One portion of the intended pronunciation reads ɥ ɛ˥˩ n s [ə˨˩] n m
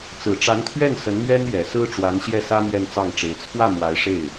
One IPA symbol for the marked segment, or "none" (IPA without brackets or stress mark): ə˧˥